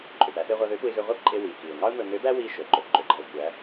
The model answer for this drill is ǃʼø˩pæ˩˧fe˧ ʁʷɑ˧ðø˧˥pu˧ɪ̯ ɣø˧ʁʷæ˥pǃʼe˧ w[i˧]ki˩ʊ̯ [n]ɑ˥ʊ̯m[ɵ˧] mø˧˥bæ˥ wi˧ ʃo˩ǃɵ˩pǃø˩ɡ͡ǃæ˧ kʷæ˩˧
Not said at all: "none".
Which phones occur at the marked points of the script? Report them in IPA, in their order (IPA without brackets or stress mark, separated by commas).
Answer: i˩, ŋ, ɵ˧